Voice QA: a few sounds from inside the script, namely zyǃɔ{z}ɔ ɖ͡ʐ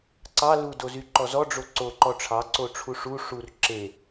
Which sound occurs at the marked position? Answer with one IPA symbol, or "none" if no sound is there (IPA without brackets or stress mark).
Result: z